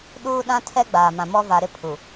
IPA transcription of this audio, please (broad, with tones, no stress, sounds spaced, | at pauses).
ɗ uː˦ ɗ ã˦ tʰ ɛ˦ ɡ͡b aː˨ m ã˨ m ɔ˦ v a˨ ɾ ɪ˦ pʰ u˨